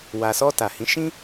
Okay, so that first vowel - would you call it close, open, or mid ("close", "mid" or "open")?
open